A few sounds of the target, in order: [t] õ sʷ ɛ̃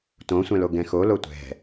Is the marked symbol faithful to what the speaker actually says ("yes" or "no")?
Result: yes